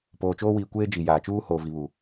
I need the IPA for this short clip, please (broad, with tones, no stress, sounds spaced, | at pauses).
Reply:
p oː˨ t͡ʃ oː˦ w iː˨ kʷ eː˦ d͡ʒ i˨ j aː˨ t͡ʃ uː˦ h oː˨ v i˨ β u˨